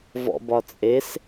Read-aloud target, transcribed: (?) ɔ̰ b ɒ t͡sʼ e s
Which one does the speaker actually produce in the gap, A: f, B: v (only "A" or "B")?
B